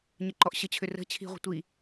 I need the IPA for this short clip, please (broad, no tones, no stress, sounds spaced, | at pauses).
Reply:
ɲ ə ǃ ɔ ʔ ɕ ə t͡ɕʰ ʏ r ə̤ t͡ɕʰ i̤ ʁʷ ə̤ tʷ i